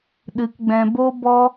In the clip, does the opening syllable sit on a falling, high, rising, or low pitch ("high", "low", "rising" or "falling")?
low